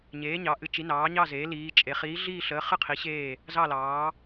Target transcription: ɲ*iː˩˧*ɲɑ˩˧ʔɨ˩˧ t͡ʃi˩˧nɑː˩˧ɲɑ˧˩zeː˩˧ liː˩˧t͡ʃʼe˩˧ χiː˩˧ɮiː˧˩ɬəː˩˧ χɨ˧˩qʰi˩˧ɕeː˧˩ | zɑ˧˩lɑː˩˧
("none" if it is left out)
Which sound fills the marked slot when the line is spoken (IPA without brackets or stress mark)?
eː˩˧